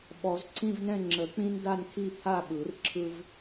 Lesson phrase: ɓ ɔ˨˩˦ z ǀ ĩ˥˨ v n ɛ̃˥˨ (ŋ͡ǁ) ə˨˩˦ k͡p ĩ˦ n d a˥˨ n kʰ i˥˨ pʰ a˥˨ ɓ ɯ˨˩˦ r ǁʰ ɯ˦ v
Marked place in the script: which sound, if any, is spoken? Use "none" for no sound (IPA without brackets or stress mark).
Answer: ŋ͡ǁ